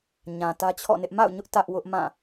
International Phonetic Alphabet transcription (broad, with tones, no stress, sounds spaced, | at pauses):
ɲ ã˨ t ä˦ t͡ɕʰ ɔ̰˦˨ n ɪ˦ ʔ m a̰˦˨ ʊ̯ ɲ ʊ˦ ʔ t ä˦ ʔ w ʊ˦ ʔ m ã˦˨